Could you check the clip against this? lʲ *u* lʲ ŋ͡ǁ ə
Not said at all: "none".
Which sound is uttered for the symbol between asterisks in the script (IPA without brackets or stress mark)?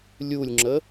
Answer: u